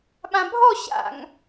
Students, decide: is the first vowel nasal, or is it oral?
nasal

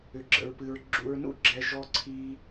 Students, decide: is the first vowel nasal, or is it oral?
oral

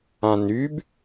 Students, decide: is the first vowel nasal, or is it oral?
nasal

